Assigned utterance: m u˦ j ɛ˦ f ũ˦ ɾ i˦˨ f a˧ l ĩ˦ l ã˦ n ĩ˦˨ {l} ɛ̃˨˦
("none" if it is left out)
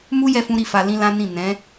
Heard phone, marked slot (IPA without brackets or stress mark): n